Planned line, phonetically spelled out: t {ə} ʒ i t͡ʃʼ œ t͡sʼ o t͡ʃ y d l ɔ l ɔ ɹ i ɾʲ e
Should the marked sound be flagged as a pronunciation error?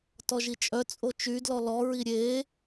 yes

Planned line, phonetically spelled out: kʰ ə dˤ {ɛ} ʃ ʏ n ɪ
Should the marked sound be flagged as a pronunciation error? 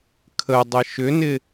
yes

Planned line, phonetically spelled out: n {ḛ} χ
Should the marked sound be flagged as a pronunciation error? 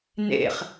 no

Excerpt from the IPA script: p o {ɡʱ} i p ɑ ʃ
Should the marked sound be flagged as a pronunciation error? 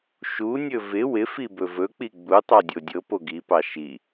yes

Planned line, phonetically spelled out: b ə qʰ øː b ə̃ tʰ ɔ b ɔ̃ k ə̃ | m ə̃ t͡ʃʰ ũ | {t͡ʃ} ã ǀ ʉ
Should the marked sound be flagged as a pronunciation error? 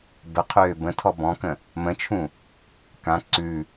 yes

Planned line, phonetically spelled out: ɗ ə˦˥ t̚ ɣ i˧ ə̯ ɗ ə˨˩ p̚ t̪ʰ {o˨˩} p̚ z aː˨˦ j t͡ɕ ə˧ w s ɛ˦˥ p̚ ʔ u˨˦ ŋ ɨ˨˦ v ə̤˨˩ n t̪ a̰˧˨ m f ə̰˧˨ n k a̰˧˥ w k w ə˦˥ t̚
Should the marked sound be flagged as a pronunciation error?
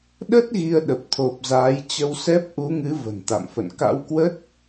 no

